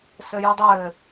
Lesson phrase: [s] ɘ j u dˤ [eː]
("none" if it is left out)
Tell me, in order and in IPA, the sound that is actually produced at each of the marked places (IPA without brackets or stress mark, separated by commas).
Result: s, ɘː